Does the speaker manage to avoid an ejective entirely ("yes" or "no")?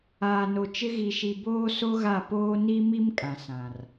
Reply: no